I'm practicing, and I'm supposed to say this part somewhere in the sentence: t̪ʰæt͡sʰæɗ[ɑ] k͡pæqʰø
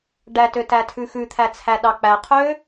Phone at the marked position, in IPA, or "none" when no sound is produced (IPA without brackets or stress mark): ɑ